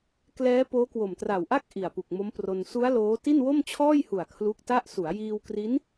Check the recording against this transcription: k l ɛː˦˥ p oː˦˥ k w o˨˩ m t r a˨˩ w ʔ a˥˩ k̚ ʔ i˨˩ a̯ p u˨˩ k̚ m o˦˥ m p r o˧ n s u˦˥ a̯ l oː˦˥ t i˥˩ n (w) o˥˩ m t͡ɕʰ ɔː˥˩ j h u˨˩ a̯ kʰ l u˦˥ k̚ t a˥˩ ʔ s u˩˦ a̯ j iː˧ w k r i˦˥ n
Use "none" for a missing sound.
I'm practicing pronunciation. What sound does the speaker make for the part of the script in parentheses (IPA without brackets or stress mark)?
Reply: w